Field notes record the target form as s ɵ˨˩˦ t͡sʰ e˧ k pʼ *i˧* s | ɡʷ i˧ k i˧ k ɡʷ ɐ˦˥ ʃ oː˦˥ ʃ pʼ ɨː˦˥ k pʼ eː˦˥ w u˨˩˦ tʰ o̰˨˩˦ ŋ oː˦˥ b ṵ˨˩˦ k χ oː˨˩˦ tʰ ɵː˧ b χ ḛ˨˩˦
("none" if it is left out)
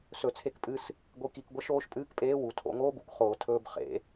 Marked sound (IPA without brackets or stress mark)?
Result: ɨ˧